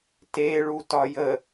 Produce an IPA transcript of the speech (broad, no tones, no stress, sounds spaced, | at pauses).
t e ɭ u t ɒ j ə